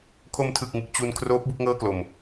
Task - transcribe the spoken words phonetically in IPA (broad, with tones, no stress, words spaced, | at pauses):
kʰo˧mtʰɯ˨˩k̚ŋɯ˨˩k̚ t͡ɕu˧n kʰroː˦˥p̚ bu˦˥k̚ŋɤː˥˩klo˨˩m